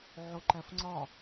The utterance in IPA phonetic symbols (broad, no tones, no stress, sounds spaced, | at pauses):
ʕ o ǃ æ f ŋ͡ǀ ɒ